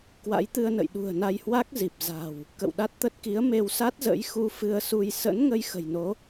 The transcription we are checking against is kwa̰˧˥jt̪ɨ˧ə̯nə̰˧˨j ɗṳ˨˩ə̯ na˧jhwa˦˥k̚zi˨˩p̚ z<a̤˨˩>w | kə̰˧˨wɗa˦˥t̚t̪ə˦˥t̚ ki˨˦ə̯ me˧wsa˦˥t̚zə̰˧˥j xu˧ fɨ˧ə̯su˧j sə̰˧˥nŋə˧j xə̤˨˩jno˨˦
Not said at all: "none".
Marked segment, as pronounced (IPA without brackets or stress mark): a̤˨˩